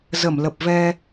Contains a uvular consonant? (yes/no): no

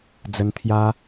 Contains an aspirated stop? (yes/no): yes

